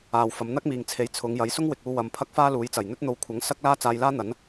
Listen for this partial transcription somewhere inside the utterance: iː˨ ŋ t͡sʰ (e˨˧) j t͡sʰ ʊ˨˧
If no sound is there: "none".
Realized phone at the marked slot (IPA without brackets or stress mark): e˨˥